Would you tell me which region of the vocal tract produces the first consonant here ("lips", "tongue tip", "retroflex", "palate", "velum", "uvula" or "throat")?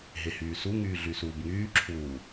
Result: throat